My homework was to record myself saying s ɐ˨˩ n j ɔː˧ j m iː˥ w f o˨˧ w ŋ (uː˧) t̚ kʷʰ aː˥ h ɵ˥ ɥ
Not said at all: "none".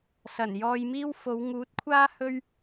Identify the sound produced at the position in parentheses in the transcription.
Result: uː˨˥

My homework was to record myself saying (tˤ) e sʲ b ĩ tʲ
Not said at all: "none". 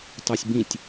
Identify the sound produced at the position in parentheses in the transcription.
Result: tˤ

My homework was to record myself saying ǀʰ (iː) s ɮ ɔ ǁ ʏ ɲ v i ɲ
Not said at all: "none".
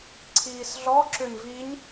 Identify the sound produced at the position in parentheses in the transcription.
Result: iː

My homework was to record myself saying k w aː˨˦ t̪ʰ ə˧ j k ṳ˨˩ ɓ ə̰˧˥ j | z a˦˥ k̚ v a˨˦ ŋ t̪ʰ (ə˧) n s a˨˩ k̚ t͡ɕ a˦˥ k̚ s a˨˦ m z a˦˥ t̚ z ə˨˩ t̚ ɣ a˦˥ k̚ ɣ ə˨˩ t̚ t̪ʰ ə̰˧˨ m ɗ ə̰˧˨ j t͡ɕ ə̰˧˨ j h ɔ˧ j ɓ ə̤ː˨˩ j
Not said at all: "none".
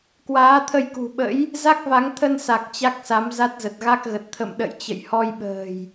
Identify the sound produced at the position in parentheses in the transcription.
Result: ə˧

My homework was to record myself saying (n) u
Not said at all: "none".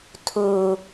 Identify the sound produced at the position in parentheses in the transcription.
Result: tʰ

